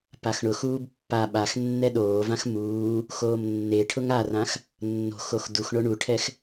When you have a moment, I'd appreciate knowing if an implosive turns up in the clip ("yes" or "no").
yes